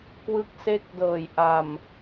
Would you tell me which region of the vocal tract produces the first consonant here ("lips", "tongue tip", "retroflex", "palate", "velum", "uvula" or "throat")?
velum